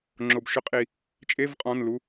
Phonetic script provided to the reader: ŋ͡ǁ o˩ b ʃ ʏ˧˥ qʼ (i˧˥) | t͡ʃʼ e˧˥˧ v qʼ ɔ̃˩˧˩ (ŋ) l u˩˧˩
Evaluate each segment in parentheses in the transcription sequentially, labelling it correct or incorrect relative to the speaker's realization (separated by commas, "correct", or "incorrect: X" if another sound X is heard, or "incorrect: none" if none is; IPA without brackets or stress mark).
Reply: incorrect: i˩, incorrect: n